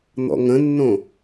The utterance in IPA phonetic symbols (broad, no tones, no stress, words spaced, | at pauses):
n̪ɔ̰ŋə̃nːõ